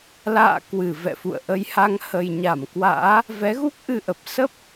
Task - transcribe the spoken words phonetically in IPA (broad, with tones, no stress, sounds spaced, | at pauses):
l a̰ː˧˨ k w ɨ˧˩ v ɛ̰˧˨ f ṵ˧˨ ə̯ ʔ ə˨˦ j h a˧ ŋ h ə˨˩ j ɲ a˧˩ m k w a̰ː˧˥ | v ɛ˨˦ ɣ u˦˥ k̚ ʔ ɨ˧ ʔ ə˨˩ p̚ s ə˦˥ p̚